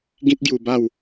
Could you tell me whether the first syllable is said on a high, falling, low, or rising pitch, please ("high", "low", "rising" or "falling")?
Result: high